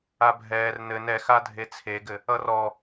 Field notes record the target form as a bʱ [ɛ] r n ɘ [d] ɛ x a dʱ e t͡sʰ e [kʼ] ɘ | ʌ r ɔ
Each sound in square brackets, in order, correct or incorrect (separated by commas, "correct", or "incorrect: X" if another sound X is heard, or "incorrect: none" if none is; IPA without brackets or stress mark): incorrect: ɛː, incorrect: n, incorrect: ɡ